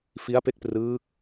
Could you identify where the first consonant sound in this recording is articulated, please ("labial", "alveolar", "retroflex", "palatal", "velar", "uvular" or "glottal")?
labial